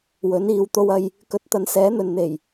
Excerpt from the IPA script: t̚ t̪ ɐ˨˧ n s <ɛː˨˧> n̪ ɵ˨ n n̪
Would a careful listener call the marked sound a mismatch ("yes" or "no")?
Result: yes